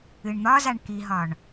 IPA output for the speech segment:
ɨ ɳ n̪ ɒ z a ɳ k i ɦ ɒ ɳ

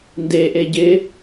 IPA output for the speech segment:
n d e ʔ e ɟ ɪ

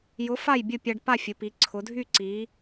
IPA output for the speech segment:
j ʊ˨˥ f a˥˨ j bʲ ʊ˥˨ pʲ a˧ ɖ p a˥˨ fʲ ʊ˩˧ p i˩˧ ǀʰ ʊ˩˧ dʱ y˥˨ ǀ i˩˧

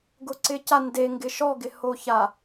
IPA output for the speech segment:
ɡ ʊ ǀ ɪ c a n d e ŋ ɡ ɪ ʃ ɔ ɡ ɪ h o ç a

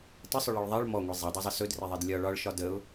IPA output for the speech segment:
t ə sˤ ʊ ɭ e ɭ ðˤ ɛ ɭ m ɔ ŋʷ i zˤ e dˤ e zˤ ə s ɵ d r e ðˤ e d lʲ ɒ ɭ ɒ ɭ ʃ ɒ d ə ʊ̯

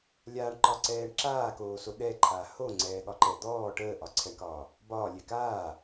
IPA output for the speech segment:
lʲ a ɳ ǃ ɒ ǀ ɛː ɳ ǁ aː k oː s o ɗ ɛ ǃʰ a h o ŋ͡ǀ ɛː ɠ ɒ ǃ ɛ d̪ ɔː ʈ əː ʔ ɒ ǀʰ ɛ ɳ k ɒː | b ɒː lʲ ɛ k aː

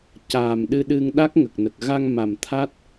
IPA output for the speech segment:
c aː˨˩ m ɗ ɨ˧ ɗ ɨ˧ ŋ ɗ a˦˥ k̚ ŋ ə˨˩ k̚ n ə˨˩ k̚ ɣ a˧ ŋ m a˨˩ m t̪ʰ a˦˥ t̚

